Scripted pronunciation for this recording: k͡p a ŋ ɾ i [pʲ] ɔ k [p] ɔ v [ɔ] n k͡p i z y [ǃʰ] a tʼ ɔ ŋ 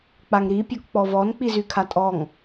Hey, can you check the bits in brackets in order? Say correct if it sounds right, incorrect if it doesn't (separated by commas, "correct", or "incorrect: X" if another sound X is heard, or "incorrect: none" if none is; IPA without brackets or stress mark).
correct, incorrect: k͡p, correct, incorrect: kʰ